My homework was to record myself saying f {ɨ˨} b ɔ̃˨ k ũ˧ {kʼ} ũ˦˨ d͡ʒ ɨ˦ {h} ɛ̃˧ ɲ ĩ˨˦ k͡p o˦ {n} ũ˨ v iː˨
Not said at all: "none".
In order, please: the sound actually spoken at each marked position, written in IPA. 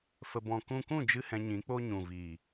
ə˨, k, h, ɲ

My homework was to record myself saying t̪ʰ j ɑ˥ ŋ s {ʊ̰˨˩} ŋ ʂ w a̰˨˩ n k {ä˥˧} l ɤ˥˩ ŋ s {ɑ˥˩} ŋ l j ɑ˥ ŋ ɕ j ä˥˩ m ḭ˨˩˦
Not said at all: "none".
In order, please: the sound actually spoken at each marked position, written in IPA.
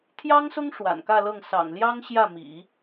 ʊ˥, ä˥˧, ɑ̰˨˩

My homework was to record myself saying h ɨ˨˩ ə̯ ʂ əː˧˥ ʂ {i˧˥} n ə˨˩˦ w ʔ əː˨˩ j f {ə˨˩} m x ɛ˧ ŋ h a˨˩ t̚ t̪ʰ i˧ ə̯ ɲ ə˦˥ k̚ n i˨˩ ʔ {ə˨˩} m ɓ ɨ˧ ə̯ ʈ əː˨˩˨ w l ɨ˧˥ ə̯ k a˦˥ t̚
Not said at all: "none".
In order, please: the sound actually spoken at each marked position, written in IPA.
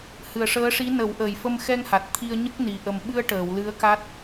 i˧˥, ə˧, ə˨˩

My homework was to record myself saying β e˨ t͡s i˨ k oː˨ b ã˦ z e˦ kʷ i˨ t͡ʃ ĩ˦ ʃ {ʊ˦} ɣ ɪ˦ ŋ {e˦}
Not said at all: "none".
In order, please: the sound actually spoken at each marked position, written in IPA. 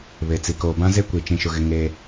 ʊ˦, e˦

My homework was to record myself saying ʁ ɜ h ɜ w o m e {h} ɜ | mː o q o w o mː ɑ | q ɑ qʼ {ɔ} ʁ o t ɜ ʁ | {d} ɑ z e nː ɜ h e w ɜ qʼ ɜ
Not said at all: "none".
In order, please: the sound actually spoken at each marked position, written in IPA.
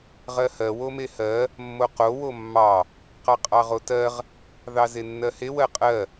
h, ɑ, ð

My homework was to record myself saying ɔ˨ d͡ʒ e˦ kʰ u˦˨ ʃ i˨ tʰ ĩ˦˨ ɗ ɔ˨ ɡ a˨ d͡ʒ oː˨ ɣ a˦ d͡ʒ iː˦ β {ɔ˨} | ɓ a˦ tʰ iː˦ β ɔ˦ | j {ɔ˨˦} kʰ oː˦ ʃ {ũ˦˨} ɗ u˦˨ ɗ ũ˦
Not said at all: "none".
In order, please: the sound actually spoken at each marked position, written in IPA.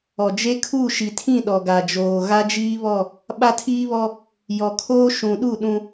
ɔ˦˨, ɔ˨, ũ˨

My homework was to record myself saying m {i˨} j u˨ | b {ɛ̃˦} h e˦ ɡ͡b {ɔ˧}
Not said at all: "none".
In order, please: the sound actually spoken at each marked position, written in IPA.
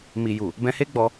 i˨, ɛ̃˧, ɔ˧

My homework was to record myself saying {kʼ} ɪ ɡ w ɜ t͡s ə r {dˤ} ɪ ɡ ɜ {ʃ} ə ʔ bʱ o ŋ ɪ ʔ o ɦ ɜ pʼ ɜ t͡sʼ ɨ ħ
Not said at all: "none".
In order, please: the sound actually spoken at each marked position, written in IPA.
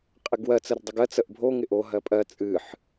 qʼ, dˤ, t͡s

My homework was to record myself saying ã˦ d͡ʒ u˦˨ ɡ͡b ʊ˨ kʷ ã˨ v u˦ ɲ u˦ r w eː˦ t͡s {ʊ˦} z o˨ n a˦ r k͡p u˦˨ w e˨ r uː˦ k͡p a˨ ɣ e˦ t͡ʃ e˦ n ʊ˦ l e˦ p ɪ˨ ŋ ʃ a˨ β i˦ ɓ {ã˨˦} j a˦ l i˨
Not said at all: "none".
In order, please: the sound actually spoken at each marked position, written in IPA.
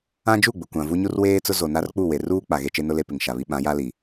ʊ˦, ã˨˦

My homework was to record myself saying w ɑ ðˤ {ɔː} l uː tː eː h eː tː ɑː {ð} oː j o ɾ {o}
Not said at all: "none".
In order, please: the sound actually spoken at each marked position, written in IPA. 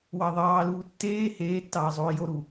ɑː, zˤ, u

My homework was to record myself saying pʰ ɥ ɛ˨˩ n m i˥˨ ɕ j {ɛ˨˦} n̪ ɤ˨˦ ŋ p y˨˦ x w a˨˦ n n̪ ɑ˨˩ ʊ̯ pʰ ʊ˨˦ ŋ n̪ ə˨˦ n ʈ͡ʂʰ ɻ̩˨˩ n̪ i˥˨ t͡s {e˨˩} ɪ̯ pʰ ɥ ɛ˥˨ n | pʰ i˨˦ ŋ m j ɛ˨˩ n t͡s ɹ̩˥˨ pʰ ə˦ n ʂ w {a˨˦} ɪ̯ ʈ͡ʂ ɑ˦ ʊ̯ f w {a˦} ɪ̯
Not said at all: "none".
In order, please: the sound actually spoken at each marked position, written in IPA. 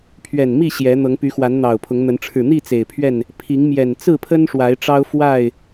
ɛ˨˦, e˨˩, a˨˦, a˥˨

